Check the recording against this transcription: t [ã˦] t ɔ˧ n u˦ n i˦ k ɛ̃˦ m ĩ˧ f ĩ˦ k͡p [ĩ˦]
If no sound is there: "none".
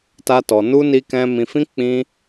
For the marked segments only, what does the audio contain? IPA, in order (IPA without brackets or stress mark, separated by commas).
a˦, ĩ˦